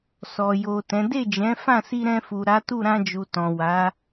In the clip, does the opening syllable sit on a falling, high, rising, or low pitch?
low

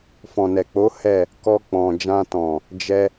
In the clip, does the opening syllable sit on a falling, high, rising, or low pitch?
low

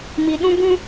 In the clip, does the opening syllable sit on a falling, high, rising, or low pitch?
low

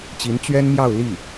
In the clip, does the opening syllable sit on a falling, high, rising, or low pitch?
rising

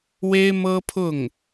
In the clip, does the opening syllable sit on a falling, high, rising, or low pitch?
high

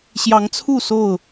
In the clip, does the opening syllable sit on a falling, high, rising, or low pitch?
rising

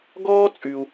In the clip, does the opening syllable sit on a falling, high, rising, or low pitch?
high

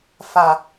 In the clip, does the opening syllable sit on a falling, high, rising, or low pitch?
low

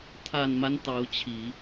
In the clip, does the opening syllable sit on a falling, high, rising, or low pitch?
low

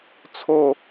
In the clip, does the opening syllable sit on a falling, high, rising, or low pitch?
falling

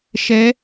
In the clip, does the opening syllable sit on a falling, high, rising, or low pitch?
rising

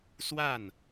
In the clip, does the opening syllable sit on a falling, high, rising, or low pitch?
falling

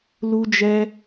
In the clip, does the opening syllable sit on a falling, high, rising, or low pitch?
high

